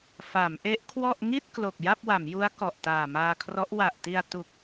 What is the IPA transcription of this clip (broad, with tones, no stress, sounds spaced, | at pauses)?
f a˩˦ m ʔ e˦˥ ʔ kʰ w ɔ˥˩ ʔ ŋ i˥˩ t̚ k l o˨˩ k̚ j a˥˩ p̚ w a˩˦ m j u˦˥ a̯ k ɔ˨˩ ʔ t aː˨˩ m aː˧ kʰ r ɔ˦˥ ʔ w a˨˩ ʔ t i˧ a̯ t u˨˩ k̚